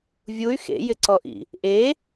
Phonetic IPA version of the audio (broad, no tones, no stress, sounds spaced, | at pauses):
vʲ u y̯ x ḛ j ɪ ǀ ɔ ʔ ḭ | ʔ e